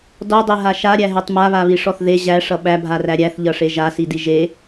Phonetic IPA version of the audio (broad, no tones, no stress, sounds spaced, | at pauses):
d ɔ dˤ e ɦ a ʃ a ɾʲ æ ɦ e tˤ m a β a β i ʂ ɔ θ ð e ʑ æ ʂ ʌ ɓ æ bʱ a r æ ɾʲ æ θ ʎ ʌ ʂ e ʒ a s i d i ʒ e